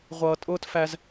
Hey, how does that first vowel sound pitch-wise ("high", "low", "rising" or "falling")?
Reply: low